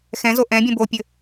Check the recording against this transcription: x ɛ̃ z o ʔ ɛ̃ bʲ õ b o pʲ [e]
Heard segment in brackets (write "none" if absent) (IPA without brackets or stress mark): ɘ